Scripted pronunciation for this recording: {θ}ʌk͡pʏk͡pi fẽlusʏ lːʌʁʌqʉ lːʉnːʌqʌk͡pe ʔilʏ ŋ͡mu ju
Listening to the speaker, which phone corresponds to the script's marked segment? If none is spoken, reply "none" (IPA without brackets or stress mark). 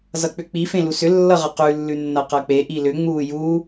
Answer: z